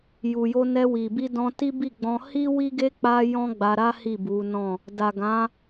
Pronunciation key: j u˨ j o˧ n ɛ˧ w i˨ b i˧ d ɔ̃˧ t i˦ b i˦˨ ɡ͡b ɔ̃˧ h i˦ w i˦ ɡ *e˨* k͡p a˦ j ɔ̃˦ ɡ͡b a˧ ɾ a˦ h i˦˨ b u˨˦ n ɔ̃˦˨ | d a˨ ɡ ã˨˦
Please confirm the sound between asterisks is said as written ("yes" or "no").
no